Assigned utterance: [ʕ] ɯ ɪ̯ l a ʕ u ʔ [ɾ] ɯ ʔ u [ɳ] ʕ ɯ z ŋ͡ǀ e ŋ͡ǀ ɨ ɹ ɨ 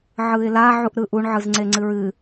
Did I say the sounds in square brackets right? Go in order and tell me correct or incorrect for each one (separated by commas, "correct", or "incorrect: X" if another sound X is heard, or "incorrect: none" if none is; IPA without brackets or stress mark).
correct, correct, correct